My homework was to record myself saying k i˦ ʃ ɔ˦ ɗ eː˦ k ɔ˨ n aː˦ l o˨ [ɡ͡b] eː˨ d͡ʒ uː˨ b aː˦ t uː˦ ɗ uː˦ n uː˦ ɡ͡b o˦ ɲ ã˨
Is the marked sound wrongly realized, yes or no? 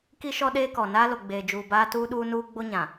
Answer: no